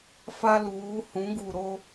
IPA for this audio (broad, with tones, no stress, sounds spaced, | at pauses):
f a˦ l uː˨˦ h ũ˨˦ ɡ u˨ ɾ o˦